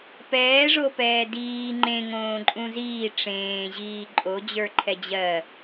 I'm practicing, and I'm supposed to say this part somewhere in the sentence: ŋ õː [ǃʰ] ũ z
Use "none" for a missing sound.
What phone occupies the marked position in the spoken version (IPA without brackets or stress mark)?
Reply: ǃʼ